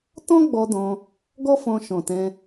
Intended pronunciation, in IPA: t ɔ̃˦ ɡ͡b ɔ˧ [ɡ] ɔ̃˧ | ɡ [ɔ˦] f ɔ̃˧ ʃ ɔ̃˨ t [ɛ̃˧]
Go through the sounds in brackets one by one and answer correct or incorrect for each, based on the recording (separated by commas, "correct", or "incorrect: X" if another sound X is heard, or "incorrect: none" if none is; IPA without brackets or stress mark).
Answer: incorrect: d, correct, correct